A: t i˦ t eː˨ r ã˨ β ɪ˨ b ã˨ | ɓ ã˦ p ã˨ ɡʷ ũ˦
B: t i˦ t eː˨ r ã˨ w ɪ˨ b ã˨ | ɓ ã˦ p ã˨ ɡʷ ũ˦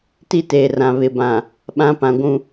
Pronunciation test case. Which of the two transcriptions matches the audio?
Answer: A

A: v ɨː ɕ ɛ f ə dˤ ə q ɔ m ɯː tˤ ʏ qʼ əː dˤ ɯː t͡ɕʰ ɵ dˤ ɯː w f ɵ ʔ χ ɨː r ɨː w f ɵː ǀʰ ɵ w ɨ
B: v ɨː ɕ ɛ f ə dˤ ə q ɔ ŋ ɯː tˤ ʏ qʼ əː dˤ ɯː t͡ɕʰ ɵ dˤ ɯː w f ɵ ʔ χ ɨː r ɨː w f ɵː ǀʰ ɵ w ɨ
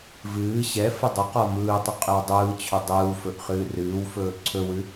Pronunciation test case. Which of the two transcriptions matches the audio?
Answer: A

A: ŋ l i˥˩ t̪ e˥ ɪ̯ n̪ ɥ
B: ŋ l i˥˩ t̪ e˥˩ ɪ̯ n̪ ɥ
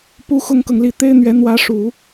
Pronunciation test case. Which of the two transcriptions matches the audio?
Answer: A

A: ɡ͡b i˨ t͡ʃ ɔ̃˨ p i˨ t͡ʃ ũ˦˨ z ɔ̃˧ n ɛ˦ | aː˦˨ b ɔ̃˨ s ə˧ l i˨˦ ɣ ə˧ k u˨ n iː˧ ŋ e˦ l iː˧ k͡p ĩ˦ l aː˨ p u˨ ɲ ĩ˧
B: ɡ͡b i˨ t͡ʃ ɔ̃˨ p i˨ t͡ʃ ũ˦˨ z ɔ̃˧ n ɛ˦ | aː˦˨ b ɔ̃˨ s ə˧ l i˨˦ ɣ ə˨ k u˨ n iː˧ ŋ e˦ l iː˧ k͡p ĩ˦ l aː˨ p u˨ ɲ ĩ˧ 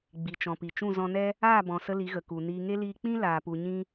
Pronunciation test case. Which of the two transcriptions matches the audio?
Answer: B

